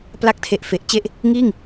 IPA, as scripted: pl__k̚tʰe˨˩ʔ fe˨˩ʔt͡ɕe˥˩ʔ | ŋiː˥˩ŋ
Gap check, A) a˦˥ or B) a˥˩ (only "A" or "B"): A